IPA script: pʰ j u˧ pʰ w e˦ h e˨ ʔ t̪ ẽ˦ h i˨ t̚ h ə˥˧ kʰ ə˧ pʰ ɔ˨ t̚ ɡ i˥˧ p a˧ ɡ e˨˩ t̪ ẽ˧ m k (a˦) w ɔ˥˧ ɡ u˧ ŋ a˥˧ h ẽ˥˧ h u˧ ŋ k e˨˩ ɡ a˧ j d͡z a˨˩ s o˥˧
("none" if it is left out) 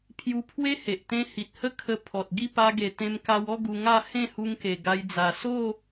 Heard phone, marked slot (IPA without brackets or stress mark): a˧